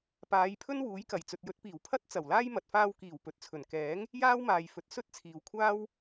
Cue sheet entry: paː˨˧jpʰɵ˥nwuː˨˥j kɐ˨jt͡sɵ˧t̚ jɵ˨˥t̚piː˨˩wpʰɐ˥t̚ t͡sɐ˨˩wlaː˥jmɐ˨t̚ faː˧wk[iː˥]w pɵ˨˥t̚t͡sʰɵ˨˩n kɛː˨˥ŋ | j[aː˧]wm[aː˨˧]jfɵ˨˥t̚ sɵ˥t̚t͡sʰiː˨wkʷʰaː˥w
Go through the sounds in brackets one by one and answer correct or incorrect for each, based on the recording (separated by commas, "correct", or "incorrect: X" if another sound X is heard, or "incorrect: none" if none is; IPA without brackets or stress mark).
incorrect: iː˨˩, incorrect: aː˥, incorrect: aː˨